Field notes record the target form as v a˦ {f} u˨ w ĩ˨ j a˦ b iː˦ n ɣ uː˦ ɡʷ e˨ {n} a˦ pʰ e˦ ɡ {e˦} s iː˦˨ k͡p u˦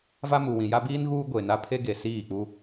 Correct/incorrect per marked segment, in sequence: incorrect: m, correct, incorrect: e˨

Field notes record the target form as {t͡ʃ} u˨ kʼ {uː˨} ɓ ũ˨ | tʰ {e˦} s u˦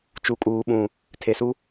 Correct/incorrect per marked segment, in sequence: correct, correct, incorrect: e˨

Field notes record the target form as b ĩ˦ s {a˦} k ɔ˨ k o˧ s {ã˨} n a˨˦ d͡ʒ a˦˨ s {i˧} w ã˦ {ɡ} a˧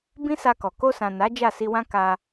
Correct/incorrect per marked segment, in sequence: incorrect: a˧, correct, correct, incorrect: k

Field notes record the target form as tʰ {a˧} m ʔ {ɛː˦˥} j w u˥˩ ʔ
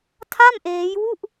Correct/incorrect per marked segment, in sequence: incorrect: a˥˩, incorrect: eː˦˥

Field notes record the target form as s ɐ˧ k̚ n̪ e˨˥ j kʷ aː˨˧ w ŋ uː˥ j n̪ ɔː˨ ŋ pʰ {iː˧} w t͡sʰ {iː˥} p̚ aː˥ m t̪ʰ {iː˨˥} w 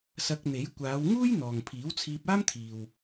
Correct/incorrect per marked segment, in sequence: incorrect: iː˨˥, incorrect: iː˧, incorrect: iː˨

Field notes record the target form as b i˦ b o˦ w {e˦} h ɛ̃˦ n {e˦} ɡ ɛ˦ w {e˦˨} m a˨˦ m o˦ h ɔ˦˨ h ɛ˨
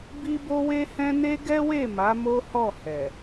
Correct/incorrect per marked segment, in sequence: correct, correct, correct

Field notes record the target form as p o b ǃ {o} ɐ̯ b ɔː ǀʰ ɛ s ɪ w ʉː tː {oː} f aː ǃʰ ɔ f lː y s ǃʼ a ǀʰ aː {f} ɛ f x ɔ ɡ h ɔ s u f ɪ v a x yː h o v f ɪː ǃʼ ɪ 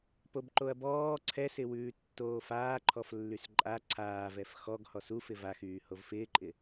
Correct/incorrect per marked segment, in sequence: correct, correct, incorrect: v

